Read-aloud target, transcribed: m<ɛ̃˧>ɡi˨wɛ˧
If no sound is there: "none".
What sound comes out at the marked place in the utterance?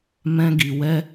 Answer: ɛ̃˧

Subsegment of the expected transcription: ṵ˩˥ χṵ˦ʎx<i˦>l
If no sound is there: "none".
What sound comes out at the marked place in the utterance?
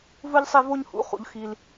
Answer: i˦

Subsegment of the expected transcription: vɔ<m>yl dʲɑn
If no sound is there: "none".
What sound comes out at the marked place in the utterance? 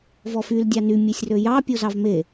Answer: f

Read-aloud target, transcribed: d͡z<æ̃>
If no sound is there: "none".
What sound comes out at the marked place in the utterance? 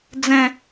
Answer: ɛ̃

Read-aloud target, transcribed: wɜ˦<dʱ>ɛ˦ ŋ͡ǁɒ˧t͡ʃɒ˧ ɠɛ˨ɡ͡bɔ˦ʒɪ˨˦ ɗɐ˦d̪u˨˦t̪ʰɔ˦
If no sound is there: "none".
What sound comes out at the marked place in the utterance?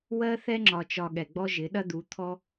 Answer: θ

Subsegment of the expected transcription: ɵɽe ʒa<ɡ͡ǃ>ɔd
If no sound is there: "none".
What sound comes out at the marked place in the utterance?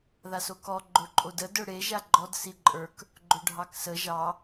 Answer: ɡ͡ǃ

